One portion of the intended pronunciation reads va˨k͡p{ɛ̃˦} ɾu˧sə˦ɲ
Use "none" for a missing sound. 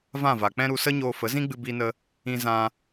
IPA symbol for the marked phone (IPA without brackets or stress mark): ɛ̃˦